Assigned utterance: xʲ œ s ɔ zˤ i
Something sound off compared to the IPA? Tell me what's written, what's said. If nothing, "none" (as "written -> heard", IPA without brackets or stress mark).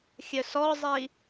none